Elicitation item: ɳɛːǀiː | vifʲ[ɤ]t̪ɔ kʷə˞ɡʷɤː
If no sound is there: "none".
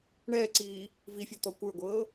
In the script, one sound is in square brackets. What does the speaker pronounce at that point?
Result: ɤ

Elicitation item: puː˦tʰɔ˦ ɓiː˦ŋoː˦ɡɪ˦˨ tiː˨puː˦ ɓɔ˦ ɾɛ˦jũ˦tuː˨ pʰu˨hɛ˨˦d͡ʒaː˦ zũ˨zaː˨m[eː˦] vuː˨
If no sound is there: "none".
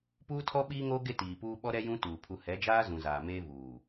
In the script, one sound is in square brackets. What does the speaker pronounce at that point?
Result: eː˦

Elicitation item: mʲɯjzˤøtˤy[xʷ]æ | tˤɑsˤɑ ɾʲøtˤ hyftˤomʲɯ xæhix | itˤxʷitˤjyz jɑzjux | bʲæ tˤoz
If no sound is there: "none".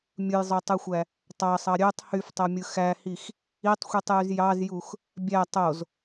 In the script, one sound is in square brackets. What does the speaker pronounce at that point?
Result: xʷ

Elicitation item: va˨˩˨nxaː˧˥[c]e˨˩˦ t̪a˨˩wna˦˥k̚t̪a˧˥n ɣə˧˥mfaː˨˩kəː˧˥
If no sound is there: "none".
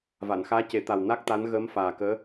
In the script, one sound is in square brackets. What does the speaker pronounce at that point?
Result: c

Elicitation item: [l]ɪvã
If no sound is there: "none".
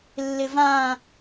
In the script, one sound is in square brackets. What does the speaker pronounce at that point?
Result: lː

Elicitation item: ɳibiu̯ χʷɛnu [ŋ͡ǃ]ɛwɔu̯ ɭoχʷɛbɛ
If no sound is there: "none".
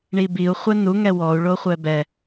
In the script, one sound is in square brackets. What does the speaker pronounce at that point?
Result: ŋ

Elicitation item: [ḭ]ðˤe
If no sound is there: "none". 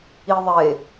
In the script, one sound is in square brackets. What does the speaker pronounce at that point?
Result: i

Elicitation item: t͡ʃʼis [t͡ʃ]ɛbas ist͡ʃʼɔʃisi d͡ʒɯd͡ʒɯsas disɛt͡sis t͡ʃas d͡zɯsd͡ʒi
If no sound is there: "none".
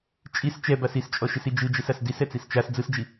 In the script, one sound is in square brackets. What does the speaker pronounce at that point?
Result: t͡ʃ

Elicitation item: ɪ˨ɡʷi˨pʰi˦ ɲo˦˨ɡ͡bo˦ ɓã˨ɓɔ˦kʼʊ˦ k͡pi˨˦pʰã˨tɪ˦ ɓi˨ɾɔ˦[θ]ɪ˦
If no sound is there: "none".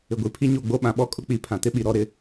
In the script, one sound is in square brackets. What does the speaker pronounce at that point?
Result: ɾ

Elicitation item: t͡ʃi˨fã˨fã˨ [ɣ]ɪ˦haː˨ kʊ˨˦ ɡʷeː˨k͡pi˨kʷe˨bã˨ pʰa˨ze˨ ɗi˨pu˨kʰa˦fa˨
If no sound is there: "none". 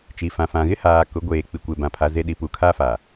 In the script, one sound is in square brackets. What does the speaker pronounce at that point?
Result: ɣ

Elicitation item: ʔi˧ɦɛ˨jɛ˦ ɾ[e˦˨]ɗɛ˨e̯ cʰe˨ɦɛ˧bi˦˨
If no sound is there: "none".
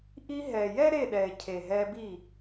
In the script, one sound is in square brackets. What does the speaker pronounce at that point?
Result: e˦˨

